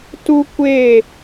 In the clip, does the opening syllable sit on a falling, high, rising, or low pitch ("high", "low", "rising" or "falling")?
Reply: high